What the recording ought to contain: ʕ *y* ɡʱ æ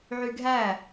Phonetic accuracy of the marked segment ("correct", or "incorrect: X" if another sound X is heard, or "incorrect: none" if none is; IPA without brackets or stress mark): correct